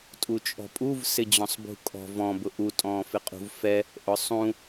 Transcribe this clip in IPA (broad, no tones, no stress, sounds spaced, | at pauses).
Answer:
tʼ u t͡ʃʼ ɔ̤ pʼ u v s ɪ d͡ʑ ɔ̃ sˤ b ṳ kʼ ɔ̤ v ɔ̃ b ʊ ʔ u tʼ ɔ̃ː f ɪ qʼ ṳ v f ɛ | ʔ ʊ sˤ ũ